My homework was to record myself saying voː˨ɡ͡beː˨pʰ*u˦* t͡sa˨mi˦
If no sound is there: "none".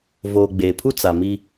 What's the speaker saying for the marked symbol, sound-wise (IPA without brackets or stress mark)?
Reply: u˦